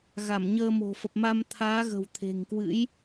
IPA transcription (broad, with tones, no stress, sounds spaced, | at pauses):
ɣ a˧˩ m ɲ əː˧ m o̤˨˩ f ə˨˩ p̚ m a˧ m t̪ʰ aː˨˦ ɣ ə̤˨˩ w t̪ʰ e̤˨˩ ŋ k w ɨ̰˧˥ j